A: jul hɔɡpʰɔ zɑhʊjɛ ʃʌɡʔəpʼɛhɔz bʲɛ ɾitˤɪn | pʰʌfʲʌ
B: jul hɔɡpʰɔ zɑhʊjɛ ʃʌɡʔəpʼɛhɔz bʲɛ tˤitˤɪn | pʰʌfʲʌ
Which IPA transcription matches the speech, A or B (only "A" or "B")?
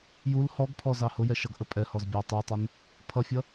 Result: B